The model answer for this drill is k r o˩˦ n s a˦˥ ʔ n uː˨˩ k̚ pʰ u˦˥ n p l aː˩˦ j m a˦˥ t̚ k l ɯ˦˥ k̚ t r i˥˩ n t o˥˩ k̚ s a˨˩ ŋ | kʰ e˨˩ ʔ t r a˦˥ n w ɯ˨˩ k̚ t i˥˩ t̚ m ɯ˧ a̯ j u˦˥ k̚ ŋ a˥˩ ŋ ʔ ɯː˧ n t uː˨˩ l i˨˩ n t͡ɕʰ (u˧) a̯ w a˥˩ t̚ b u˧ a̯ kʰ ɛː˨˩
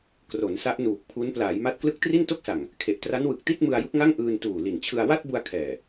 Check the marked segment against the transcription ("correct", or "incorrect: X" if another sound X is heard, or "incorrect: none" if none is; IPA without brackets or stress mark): incorrect: ɯ˧